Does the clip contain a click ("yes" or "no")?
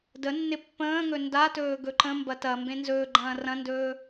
yes